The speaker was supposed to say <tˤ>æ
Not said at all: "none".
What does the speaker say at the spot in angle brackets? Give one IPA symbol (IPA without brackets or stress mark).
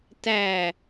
t